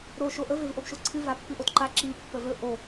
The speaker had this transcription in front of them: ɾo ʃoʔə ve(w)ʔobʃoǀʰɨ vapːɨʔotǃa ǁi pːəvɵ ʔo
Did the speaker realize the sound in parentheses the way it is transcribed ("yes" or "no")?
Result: no